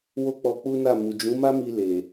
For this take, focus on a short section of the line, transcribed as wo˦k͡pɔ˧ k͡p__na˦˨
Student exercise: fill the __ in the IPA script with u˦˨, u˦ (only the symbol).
u˦